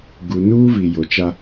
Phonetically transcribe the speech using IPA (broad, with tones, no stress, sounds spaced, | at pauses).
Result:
ɡ u˨ n uː˦ v i˨ j o˨ t͡ʃ a˦